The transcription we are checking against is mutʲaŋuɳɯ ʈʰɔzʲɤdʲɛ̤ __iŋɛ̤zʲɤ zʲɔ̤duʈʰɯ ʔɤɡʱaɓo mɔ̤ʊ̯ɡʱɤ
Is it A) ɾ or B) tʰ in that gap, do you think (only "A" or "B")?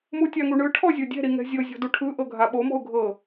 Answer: A